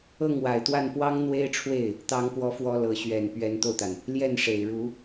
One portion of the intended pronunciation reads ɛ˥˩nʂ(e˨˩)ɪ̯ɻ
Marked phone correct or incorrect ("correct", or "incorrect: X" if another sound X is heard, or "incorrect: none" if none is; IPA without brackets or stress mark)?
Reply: correct